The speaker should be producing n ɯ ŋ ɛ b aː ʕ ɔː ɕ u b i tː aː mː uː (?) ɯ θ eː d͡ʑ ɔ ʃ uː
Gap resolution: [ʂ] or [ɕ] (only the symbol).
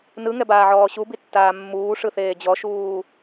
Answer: ʂ